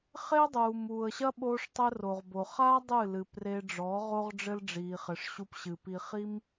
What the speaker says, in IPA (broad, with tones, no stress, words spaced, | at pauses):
χe˦ə̯dˤuː˨muː˨ə̯ɕɐ˦ ɓoː˦ʂtˤɘ˦ro˨ʁbo˨ χa˦ dˤɨ˦˨lɨ˨pre˧ɖ͡ʐɔ˨˦ ʁo˦ʁɖ͡ʐɘ˦lɖ͡ʐiː˨χɘ˨ʂ ɕu˧pɕɨ˨ pi˧χi˦m